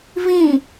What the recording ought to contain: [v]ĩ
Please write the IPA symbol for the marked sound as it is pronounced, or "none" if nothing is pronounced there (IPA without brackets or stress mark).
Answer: v